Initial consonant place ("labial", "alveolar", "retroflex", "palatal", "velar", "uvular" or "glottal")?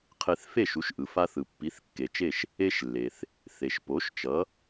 uvular